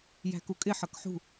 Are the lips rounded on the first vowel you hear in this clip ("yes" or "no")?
no